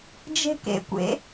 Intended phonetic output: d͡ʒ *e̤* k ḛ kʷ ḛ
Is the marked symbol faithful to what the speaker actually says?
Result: yes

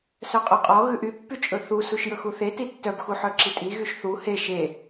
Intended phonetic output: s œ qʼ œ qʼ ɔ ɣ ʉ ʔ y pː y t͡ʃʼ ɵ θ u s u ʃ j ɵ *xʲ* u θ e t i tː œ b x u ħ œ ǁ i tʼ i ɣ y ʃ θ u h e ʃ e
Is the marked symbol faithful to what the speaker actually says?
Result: no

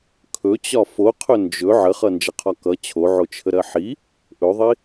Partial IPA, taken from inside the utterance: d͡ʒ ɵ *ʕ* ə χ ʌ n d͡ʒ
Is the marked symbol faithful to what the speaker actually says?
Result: yes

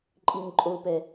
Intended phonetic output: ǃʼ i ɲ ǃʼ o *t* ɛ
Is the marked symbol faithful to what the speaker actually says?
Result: no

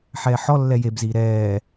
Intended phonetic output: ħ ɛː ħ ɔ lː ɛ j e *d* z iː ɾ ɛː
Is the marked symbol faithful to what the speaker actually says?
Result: no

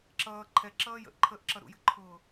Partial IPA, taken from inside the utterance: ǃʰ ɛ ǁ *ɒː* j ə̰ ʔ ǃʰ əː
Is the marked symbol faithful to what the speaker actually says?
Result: no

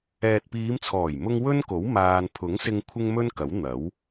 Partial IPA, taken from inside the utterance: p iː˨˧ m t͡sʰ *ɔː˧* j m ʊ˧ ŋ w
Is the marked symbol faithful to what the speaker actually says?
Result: no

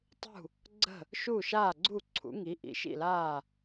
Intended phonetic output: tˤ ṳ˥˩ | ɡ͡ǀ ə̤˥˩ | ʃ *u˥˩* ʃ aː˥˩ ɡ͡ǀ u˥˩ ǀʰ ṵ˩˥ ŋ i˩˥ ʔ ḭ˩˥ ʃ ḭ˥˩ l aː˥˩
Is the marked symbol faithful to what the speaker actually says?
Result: yes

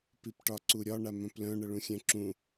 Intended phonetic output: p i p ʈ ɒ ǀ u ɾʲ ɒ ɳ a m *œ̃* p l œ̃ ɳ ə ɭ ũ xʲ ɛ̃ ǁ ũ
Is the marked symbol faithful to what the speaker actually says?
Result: yes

